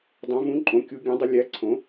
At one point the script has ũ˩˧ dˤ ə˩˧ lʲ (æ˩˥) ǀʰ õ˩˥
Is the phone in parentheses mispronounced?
no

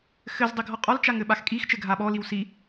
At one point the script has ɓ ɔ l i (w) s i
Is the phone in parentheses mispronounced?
no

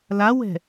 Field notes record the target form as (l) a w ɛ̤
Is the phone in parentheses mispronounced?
no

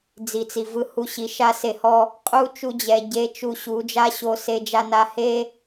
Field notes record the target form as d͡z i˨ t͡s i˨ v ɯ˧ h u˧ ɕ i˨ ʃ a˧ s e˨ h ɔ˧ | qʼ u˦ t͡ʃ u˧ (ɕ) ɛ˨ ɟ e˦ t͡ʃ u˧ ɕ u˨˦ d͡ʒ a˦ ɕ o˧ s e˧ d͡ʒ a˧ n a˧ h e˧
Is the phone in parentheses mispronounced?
yes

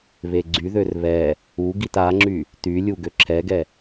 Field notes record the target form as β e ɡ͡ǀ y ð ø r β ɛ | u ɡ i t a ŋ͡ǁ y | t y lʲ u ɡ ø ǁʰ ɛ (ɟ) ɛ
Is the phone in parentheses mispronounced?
yes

